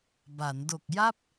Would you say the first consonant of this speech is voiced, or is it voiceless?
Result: voiced